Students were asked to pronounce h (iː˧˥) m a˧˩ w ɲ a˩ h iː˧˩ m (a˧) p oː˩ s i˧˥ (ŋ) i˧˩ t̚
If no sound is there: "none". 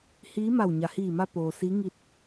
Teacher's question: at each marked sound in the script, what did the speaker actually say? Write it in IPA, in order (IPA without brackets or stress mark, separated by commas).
iː˧˥, a˧, ŋ